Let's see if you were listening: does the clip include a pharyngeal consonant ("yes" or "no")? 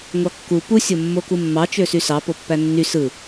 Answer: no